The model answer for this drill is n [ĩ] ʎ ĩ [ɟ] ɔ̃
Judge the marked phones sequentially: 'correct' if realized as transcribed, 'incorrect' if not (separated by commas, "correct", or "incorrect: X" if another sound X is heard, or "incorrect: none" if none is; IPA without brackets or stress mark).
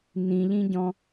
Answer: correct, correct